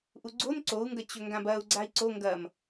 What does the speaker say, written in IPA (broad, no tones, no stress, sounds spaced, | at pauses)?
ʔ u ɡ͡ǀ o n ǀ o u̯ ŋ ɡ ɐ t͡ɕ ɵ ŋ ɡ ã b ɐ u̯ ɡ͡ǀ a i̯ ǀ o ŋ ɡ ɐ m